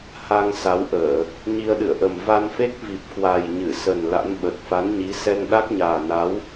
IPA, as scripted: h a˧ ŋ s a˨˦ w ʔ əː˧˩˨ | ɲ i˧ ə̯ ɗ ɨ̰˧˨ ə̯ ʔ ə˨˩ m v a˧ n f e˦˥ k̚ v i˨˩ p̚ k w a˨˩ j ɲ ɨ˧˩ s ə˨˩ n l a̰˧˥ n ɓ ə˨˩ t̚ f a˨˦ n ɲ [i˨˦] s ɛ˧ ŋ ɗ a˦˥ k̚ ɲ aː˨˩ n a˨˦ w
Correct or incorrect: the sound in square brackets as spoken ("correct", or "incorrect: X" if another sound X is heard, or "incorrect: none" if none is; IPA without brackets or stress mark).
correct